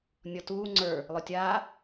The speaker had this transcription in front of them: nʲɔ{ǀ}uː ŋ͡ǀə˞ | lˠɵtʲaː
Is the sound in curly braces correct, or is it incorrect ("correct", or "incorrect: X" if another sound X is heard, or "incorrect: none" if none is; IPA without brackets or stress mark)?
incorrect: t